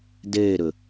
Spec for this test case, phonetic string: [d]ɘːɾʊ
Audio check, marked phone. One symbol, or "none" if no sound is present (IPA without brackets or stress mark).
d